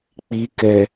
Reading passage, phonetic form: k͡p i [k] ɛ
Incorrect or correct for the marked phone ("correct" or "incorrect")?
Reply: correct